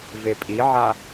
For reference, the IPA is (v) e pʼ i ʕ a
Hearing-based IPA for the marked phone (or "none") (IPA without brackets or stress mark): v